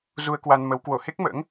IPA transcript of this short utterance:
zu˧ə̯kwa˧nmə˨˦w kwo˧˩he˦˥k̚mə̰ː˧˥ŋ

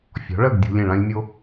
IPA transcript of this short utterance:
fʲɔ̤˩˥ɭɜ˥˩ɡ dʲṳ˧ lʲẽ˥˩ɭã˥lʲmʲo˥

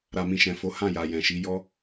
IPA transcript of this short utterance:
ɾa˨mĩ˨ʃɛ̃˨fo˨˦ hã˦˨ja˨jɛ̃˨ʃi˨˦ jɔ˦

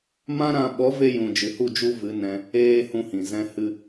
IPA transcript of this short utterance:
mã˦ɾã˧ ɓɔ˨˦ve˧jũ˨ d͡ʒɨ˨hu˦˨ d͡ʒu˦vɨ˨˦ nɛ̃˧ | eː˦ hũ˧hĩ˨zɛ̃˧ hɨ˧

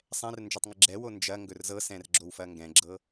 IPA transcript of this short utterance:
sˤɛ̃r nd͡ʒotˤŋəɡ͡ǁɛwo nd͡ʒɐ ŋɡɵrzɤsɛ̃r ɡ͡ǁowfɐŋɡɛ̃ɡ͡ǁɤ

